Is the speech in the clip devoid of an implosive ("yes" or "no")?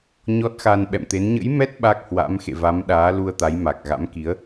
no